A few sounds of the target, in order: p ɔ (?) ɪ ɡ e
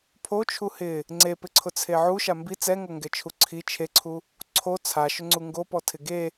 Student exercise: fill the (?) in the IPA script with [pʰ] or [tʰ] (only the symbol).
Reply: tʰ